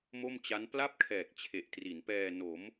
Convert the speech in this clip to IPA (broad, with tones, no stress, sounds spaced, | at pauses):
m o˥˩ m t͡ɕ a˦˥ n p l a˥˩ p̚ kʰ ɛː˨˩ k̚ t͡ɕʰ e˨˩ ʔ t r i˩˦ n p ɛː˧ n o˩˦ m